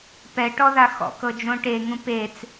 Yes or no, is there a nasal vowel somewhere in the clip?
yes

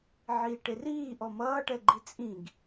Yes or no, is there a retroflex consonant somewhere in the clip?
yes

